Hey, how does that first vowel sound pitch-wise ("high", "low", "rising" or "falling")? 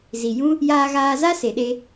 low